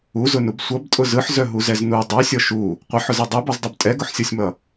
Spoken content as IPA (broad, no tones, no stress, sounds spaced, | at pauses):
u z ʊ n u b sʷ ʌ b tʼ ʊ z ɯ ħ z œ ɦ u z ɛ z n u dˤ œ sʲ ɔ ʃ u | qʷ ʌ ħ ʊ z ɛ dˤ ɛ b ɔ z dˤ ʊ b tʼ ɛ ɡ ʊ ħ sʲ ɔ sʲ m ʌ